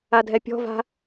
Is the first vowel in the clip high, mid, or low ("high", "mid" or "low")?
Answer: low